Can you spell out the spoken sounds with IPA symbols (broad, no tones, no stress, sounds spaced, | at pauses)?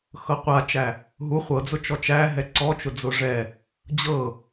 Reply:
x ɤ qʷ a t͡ʃ æ | ɦ u χʷ ɤ d͡z ʊ t͡ʃ ɔ t͡ʃ æ ɦ ɛ ǀ ɔ t͡ʃ ʊ d͡z ʊ ʐ ɛ | d͡ʑ ɤ